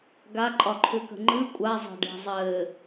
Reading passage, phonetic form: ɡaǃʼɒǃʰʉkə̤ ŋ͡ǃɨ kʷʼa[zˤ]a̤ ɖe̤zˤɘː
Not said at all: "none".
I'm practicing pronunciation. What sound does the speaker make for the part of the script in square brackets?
zˤ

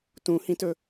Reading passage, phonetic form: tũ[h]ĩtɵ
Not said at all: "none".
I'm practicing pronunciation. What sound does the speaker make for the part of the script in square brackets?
h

